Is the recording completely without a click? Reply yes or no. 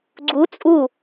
no